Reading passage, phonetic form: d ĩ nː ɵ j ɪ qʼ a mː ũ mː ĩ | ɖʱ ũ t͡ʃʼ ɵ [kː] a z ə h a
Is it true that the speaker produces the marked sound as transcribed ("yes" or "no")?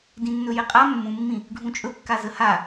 yes